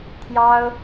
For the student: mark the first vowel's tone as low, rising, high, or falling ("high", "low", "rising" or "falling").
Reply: high